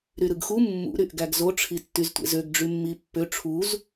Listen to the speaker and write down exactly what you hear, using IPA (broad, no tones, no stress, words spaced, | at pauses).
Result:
ɾyɾɯɡxu mːṵ ɾyʔɡæɡzo ʈ͡ʂʰitːyztʷḛzøɡ ɖ͡ʐymːipːø ʈ͡ʂʰuz